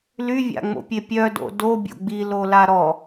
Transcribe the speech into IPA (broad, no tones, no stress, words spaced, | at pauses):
lyvʲa̰ŋ͡mo̰pʲe pʲœdo̰ dobʲo̰ ɡ͡bilola ɾɔ